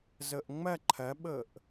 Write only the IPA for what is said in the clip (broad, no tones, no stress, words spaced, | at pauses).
zɤʔŋ͡mɐ ǃʰɐɓɤʔ